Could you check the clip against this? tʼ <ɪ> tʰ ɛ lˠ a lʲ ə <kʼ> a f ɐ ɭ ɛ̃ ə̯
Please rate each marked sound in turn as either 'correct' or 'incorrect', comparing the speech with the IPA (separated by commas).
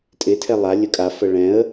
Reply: correct, correct